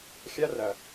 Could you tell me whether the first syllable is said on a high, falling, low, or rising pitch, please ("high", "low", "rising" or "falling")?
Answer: high